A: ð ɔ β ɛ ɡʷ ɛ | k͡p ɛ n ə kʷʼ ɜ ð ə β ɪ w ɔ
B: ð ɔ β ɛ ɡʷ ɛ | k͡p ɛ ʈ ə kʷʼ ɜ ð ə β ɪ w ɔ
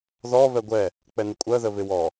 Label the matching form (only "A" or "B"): A